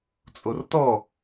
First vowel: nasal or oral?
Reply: oral